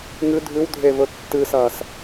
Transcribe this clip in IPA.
ŋ ɨ dʱ ʉ w dʱ e v ɵ tː ɨ s ɐː s

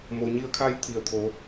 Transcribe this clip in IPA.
m o˩ ɲ i˧ ə̯ kʰ a˧ j t̪ʰ i˩ ə̯ t̪ʰ o˩˧

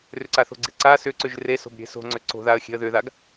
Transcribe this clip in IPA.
r ʏ ǀ a θ o̤ ɡ͡ǀ e ǀ a s ʏ ǀ ʏ ʒ r e s o̤ b ɾʲ e̤ s o̤ ŋ͡ǀ ʏ ǀ o̤ ð a ə̯ xʲ e̤ ə̯ ð ʏ ð a ɡ

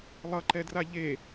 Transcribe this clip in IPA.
lˠ ʌ ǃ ɛ d r a ʎ e

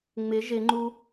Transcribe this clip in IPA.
ŋ͡m ɪ ʒ ɪ ŋ͡ǃ u

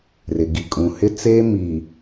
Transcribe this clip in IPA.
r ɪ˨ ɡ i˨ kʼ ũ˨ h ɪ˦ t͡s eː˦ m iː˨

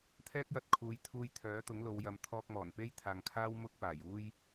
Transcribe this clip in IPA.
t̪ʰ ɛː˥ k̚ j ɐ˧ t̚ kʰ uː˨˧ j t̪ʰ uː˧ j t̪ʰ œː˨˥ t̪ ʊ˨˥ ŋ l o˨˧ w j ɐ˨˧ m t̪ʰ ɔː˧ k̚ m ɔː˨˩ n p e˥ j t̪ʰ aː˨ ŋ kʰ aː˥ w m ʊ˥ k̚ p aː˨˩ j uː˥ j

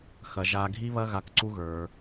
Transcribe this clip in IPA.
x ɐ˧ ʒ a˧ ɡʱ i˦ β ɐ˦ ɣ a˧ k ǀ u˦ ɣ ə˞˧

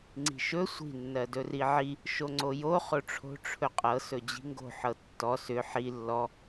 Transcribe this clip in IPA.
ŋ͡ǀ i̤ ʃ ɵ sʷ i̤ nː ɜ d ɵ r i ʕ i | ʃ o ŋ͡ǀ o j o χ o ʈ͡ʂʰ o̤ ʈ͡ʂʰ ɵ qʼ ɤ s ɵ d͡ʑ i̤ ŋ ɡ o̤ ħ ɤ tː ɔ s ʏ ħ i lː ɔ

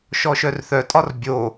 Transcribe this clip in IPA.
ʃ ɔ ʃ œ r θ œ tʼ ɒ r bʲ o

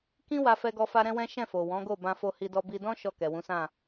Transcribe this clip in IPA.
k ĩ˦ w a˦ f ɛ˦ ɡ ɔ˦ f a˦ ɾ ɛ̃˦ w ɛ̃˦ ʃ ɛ̃˦˨ f o˨ w ɔ̃˨˦ ɡ o˦˨ b ã˧ f o˧ h i˧ d ɔ˧ b i˧ d ɔ̃˦ ʃ ɔ˦˨ k ɛ˨ w ũ˨˦ s ã˦˨

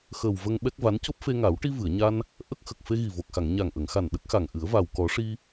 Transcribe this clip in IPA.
x əː˨˩ w v ə˧ ŋ ɓ ɛ˦˥ k̚ v a˧˥ n c o˦˥ p̚ f e˧ ŋ a˨˩˦ w ʈ i˧ v ɨ˨˩˨ ə̯ ɲ a˧ n | ʔ ə˦˥ k̚ x ə˨˩ k̚ f e˧ ɣ i˨˩ v o˨˩ k̚ x a˨˩˨ ŋ ɲ a˨˩ ŋ ʔ ə˨˩˨ ŋ x a˨˩ n ɗ ə˦˥ k̚ x a˨˩ ŋ ʔ ɨ˨˩˦ ə̯ v a˨˩ w k ɔ˨˩˦ ʂ i˧

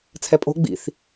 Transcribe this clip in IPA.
t͡sʰ ɛ pʼ o̤ ɡ͡b ḭ θ

